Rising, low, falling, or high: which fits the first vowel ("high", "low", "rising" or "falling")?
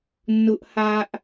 high